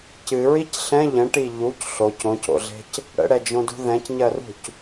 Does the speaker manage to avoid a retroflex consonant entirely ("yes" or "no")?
no